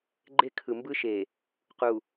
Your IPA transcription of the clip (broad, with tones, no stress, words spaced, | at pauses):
ɡ͡ǃe˦kʰɯ˨mbɯ˦ʃe˨ | qu˨